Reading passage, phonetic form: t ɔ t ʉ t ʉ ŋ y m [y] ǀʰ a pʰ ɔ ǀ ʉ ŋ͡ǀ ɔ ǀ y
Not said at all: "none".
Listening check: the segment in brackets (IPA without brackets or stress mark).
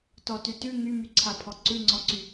y